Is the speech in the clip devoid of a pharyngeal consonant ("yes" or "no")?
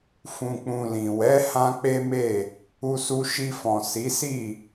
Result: yes